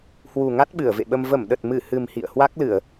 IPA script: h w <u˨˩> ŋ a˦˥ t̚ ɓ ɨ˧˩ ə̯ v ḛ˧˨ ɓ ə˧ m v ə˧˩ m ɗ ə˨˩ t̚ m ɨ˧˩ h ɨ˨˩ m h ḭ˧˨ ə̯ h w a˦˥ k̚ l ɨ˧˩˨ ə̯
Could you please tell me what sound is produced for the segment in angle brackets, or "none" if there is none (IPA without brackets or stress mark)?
u˨˩